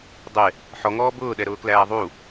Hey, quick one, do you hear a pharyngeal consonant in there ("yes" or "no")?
yes